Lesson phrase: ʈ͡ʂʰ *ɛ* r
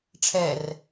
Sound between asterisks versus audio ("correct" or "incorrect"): correct